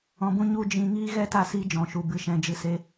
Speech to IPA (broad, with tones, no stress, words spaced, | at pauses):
ɔ̃˧bũ˦ ɲu˦d͡ʒĩ˧ŋiː˦ ɣɛ˦ta˧ siː˦d͡ʒɔ̃˨ʃu˨ bɨ˨ʃɛ̃˨d͡ʒɨ˨ se˧